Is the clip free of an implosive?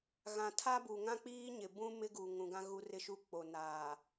yes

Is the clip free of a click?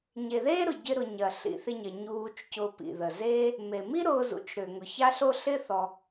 yes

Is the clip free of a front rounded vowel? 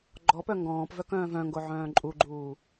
no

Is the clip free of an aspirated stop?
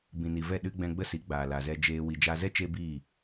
yes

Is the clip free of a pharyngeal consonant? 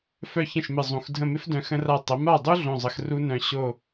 yes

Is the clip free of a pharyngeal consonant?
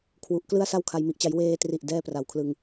yes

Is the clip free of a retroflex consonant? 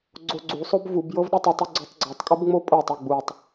yes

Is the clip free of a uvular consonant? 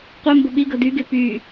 no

